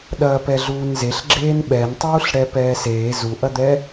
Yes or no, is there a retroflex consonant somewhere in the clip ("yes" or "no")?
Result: yes